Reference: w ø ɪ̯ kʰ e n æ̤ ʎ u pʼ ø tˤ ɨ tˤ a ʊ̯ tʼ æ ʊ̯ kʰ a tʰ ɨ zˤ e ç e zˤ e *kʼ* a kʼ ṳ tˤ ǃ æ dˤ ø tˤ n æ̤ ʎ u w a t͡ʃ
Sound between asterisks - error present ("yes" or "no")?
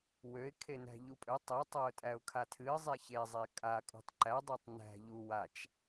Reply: no